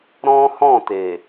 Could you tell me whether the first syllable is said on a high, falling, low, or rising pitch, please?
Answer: high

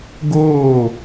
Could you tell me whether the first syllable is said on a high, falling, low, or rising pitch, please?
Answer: falling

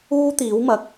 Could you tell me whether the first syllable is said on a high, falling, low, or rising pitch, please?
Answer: high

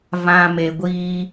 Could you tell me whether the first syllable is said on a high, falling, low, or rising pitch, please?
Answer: low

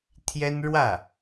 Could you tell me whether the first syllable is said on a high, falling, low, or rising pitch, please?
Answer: high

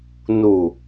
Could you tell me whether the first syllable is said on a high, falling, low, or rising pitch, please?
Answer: low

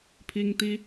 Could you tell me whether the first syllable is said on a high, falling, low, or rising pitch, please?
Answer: high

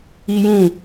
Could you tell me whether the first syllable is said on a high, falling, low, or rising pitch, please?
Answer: high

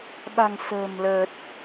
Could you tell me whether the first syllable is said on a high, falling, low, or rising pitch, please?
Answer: low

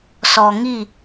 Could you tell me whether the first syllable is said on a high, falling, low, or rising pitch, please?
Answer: low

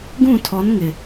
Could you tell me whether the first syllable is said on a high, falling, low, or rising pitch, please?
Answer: falling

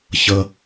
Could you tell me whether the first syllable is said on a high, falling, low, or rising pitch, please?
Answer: high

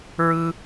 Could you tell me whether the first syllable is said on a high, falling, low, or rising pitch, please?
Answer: high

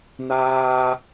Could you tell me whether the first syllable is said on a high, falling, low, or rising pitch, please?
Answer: high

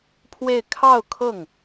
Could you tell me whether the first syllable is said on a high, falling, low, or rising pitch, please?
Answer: falling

